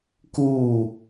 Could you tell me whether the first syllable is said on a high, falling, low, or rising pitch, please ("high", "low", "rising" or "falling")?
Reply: falling